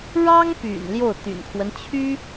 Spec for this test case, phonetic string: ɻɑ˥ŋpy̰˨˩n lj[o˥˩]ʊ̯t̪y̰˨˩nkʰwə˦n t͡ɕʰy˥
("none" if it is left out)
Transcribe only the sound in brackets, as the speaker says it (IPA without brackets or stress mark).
o˥˩